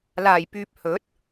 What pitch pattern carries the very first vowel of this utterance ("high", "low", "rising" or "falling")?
low